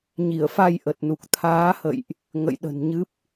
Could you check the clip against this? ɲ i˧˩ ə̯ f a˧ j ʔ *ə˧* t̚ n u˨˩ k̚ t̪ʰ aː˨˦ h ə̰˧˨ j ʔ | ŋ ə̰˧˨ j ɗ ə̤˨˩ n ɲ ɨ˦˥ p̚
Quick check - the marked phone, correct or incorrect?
incorrect